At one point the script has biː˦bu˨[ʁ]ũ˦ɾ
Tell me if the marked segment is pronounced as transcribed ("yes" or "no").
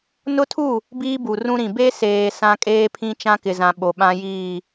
no